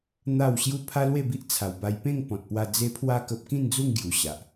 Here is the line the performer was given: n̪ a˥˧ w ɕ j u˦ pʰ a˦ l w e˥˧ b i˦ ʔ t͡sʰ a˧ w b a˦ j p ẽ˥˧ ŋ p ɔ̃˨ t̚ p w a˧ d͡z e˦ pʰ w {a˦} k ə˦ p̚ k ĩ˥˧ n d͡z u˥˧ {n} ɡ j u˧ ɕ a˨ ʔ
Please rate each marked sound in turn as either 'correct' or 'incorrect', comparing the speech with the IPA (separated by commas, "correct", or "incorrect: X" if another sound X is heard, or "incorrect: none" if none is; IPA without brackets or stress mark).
incorrect: a˥˧, incorrect: ŋ